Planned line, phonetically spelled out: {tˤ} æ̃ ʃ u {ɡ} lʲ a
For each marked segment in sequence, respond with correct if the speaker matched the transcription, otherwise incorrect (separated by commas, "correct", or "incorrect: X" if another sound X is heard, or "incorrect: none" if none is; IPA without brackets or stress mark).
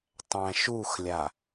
correct, incorrect: x